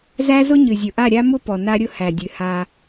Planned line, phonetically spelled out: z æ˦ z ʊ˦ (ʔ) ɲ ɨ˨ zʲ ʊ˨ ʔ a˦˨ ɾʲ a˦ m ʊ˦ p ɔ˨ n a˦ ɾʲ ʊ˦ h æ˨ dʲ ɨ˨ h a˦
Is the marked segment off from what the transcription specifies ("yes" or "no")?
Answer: yes